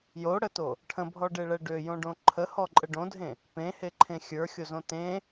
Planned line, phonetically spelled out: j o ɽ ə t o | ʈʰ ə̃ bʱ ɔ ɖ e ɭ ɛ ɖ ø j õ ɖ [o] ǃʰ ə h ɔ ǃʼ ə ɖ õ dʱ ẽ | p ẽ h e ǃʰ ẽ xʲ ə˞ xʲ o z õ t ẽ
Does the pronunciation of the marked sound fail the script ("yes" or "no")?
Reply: yes